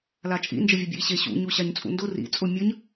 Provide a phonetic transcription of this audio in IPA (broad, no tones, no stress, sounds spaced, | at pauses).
l a t͡ʃʼ ḭ n d͡ʒ ə vʲ ə bʲ ḛ i̯ ɕ e ɕ ṵ ɲ u ɕ a ɲ t͡sʼ ṵ n d ʊ r ḭ t͡sʼ ʊ mʲ ə ɲ